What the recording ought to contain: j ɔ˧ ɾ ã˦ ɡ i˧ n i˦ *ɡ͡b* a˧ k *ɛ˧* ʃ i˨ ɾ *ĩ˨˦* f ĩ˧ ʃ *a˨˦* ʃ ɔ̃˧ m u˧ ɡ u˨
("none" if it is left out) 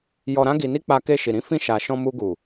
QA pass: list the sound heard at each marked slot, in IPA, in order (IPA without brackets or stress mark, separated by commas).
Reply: k͡p, e˧, ĩ˧, a˨